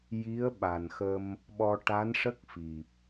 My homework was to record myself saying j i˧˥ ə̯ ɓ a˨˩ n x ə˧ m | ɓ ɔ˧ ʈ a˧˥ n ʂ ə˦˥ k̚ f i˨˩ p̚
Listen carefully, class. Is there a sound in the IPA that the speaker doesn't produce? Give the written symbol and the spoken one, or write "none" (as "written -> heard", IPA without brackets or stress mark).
none